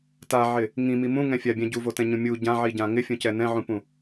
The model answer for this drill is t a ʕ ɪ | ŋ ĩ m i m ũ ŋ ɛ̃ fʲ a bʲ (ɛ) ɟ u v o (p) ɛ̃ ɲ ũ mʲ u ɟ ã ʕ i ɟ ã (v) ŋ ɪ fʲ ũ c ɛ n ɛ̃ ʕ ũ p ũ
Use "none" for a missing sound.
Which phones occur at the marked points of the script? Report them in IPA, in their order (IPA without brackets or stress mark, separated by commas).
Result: ɛ̃, t, none